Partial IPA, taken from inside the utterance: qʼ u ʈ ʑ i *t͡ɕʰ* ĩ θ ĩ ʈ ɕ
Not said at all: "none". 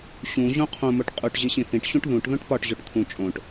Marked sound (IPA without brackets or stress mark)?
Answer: ɕ